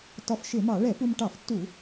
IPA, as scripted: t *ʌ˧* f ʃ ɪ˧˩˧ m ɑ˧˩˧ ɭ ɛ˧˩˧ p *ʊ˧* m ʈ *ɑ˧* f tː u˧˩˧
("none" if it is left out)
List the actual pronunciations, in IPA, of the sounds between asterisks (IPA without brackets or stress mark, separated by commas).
ɒ˧, u˧, ɑ˧˩˧